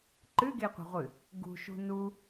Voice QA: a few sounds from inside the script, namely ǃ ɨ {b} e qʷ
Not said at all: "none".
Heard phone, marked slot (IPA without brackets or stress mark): ɡ